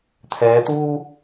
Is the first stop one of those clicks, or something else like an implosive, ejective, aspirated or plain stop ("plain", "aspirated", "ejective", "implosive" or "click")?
aspirated